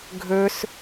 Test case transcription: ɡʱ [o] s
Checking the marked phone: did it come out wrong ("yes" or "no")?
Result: yes